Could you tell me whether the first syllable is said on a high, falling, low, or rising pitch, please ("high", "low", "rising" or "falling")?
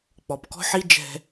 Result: low